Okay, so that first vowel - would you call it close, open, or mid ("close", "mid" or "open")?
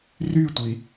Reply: close